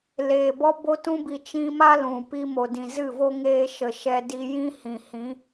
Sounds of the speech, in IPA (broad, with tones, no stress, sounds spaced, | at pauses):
l eː˨ b ɔ˦ b o˧ t ũ˧ b i˨ t͡ʃ ĩ˧ m a˦ l ũ˨ p i˧ m o˨ d ĩ˨ z ɨ˦˨ v o˦ ŋ eː˧ ʃ ə˨ ʃ ɛ˧ d i˧ j ĩ˦ h ĩ˨ h ĩ˨˦